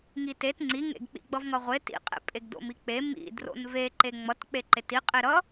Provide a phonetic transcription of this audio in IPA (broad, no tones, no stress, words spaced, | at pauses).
ŋitet ŋ͡ǀiŋḛɡk͡pḭ ɡ͡bʌvŋʌʁʷe tḭqʼḛ pʼeɡdo̰mik͡pe mḭdro̰n ve ǃeŋ͡mʌt k͡peǃeti qʼeɾʌ